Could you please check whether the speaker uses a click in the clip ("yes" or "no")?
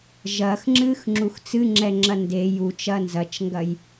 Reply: yes